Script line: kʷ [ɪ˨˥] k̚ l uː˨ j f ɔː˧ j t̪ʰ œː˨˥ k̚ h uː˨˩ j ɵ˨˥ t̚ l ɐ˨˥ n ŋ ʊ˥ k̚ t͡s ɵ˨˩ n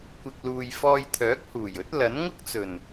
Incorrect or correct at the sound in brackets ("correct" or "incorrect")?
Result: incorrect